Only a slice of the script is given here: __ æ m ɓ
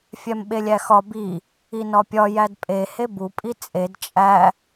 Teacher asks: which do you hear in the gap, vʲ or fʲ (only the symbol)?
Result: fʲ